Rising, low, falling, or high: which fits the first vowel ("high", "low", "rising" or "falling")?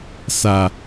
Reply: low